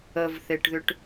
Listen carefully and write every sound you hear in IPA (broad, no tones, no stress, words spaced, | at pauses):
əvθeʈðʏʈ